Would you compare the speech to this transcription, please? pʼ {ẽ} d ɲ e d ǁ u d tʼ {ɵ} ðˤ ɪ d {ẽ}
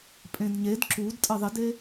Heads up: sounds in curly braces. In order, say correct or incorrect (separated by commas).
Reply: correct, incorrect, incorrect